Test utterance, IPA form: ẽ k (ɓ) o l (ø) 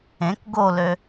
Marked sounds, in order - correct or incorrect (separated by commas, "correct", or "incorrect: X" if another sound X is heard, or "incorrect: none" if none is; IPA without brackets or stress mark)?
incorrect: ɡ, correct